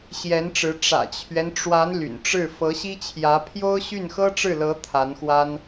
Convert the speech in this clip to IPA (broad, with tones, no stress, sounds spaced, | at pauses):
ɕ j ɛ˧˥ n ʈ͡ʂ ɻ̩˧˥ ʈ͡ʂ ä̰˨˩ t͡ɕʰ ɥ ɛ˦ n ʈ͡ʂ w a˧˥ n l y̰˨˩ n ʈ͡ʂ ɻ̩˥˩ f ɤ˧˥ ɕ i˥ t͡ɕʰ j ä˧˥ pʰ j o˥ ʊ̯ ɕ y˥˩ n x ɤ˥ ʈ͡ʂ ɻ̩˥˩ l ɤ˧˥ t̪ʰ a˧˥ n x w a˥ n